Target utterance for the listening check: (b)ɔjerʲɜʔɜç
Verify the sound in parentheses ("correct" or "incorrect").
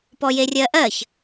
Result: incorrect